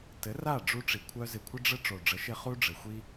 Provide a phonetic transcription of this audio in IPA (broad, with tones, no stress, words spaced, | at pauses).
tɘ˨˦ra˦˨ɖ͡ʐu˧ ʈ͡ʂi˨kʷʰœ˦zɪ˧ kʷʰɪ˦ɖ͡ʐə˦ ʈ͡ʂo˨ɖ͡ʐə˨˦ʃɪ˧ χu˦ɖ͡ʐɘ˨ xʷi˧